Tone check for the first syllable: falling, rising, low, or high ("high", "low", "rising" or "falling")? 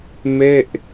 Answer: falling